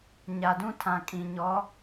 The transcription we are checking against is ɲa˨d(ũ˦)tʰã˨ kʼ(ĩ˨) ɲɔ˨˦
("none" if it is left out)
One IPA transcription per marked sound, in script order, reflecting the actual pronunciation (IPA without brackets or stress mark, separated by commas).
ũ˦, ĩ˨